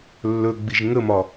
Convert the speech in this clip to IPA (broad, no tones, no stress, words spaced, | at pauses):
lːɵɡ͡biʒ ŋəmɒ